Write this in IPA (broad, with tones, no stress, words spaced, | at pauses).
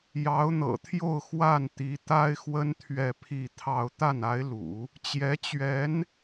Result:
jɑ˧˥ʊ̯n̪ɤ̰˨˩t̪ʰjo˥˧ʊ̯ xwa˥˩nt̪i˧˥t̪a˥ɪ̯xwə˥n t̪ʰɥɛ˥˧pʰi˥˧t̪ʰɑ˥˧ʊ̯ t̪a˥˩na˧˥ɪ̯lṵ˨˩˦ | t͡ɕjɛ˧˥t͡ɕɥɛ˧˥n